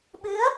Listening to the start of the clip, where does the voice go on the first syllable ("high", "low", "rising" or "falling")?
rising